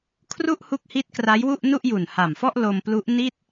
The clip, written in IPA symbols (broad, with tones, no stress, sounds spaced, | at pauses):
kʰ r u˥˩ ʔ h u˦˥ k̚ h i˦˥ t̚ k r a˦˥ j w u˥˩ ʔ n u˥˩ ʔ j u˨˩ n h a˨˩ m f ɔ˥˩ ʔ l o˧ m p l u˦˥ ʔ n i˥˩ t̚